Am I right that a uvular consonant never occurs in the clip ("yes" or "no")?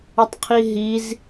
no